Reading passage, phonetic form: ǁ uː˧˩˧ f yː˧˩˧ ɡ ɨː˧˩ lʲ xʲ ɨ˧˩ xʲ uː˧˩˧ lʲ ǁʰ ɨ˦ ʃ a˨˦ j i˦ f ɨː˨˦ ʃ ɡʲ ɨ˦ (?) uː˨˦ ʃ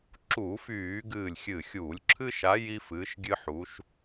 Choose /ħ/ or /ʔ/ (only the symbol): ħ